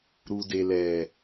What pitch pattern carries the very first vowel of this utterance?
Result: low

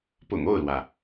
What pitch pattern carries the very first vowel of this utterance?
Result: low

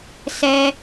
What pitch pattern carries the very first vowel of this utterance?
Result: high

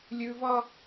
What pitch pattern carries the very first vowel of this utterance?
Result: high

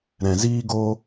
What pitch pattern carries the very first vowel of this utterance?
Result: low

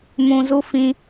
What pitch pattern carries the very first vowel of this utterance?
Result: low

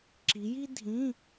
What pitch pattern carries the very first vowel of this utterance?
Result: rising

